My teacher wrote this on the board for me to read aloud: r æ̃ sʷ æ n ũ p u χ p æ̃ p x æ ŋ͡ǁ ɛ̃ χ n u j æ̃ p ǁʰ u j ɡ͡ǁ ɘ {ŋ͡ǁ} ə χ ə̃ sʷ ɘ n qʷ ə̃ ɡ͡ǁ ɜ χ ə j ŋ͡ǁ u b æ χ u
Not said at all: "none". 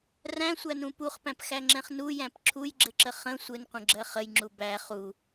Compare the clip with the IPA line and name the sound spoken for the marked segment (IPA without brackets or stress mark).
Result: ǁ